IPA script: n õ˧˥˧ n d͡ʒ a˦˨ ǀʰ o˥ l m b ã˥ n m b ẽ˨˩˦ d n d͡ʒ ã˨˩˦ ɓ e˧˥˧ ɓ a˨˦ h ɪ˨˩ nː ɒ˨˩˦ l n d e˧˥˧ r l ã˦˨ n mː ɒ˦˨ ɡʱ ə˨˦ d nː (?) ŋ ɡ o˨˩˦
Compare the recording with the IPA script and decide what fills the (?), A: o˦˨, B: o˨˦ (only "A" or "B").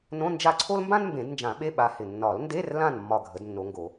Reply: B